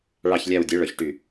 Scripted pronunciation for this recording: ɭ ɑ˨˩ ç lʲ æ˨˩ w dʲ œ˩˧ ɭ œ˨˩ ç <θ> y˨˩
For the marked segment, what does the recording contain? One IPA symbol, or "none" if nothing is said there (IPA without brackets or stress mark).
ʈ